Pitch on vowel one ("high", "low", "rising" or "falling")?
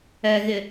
low